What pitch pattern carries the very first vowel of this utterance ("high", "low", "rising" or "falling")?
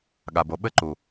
low